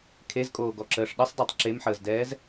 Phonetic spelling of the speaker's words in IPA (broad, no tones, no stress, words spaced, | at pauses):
kʰezkʼoːɡɔǁəːʂ ɗəsˤdɛtˤ ǁemħəːzdɛːz